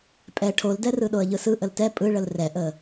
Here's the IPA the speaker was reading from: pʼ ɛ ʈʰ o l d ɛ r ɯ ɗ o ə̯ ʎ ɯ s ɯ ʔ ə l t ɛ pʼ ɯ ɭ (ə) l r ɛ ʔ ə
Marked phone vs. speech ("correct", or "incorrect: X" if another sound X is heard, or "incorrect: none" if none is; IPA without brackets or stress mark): correct